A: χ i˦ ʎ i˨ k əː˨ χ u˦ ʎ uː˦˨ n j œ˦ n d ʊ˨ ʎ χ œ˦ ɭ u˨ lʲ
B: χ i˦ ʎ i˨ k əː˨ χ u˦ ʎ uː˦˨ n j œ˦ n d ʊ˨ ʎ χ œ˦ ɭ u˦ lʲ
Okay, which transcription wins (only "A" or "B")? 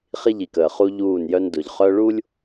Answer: B